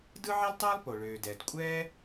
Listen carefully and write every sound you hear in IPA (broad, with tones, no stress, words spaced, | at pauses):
dɯ˥ʕɛ˥ltˤɛː˥lˠ po˩ɭøː˩dɛ˩d kʷʼɛː˥